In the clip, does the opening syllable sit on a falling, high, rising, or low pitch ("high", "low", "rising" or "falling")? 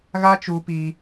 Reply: high